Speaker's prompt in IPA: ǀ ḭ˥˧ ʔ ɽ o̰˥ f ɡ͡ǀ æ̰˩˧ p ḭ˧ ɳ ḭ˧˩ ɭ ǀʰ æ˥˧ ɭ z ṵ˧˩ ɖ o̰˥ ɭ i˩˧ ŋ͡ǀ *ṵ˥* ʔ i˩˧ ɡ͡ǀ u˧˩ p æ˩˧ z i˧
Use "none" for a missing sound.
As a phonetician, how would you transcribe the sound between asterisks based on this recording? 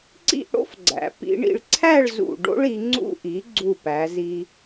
ṵ˧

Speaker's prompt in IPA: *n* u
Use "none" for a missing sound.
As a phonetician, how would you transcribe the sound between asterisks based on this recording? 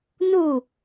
n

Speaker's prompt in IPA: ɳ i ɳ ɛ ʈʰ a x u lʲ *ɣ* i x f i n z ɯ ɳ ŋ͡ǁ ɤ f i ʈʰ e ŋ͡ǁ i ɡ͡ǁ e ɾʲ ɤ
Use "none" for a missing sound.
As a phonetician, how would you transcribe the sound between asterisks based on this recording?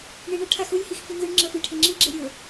h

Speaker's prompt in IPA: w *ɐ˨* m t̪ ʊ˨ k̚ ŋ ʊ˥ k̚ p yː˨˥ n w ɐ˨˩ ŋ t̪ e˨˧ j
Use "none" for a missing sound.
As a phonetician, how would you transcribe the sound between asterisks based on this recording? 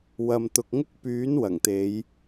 ɐ˨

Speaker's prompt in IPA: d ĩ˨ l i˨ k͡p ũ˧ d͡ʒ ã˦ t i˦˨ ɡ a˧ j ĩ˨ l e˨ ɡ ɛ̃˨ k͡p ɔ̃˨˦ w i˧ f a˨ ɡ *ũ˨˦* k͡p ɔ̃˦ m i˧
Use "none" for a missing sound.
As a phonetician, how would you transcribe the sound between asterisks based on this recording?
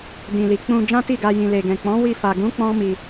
ũ˨˦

